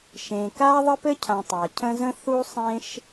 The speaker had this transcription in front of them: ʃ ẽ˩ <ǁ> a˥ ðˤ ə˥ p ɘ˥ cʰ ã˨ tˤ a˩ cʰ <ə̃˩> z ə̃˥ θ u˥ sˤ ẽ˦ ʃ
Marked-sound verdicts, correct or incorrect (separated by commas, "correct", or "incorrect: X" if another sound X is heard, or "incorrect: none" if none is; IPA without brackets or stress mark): incorrect: k, incorrect: ə̃˦